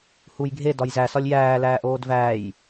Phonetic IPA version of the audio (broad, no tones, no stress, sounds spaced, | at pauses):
h u j ɡʱ e d ɒ j z æ s ɒ lʲ j æː l æː ʔ oː d v æː j